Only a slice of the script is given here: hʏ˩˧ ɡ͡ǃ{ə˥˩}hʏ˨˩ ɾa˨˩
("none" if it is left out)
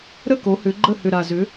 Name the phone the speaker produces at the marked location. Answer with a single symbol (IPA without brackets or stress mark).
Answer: ə˥˩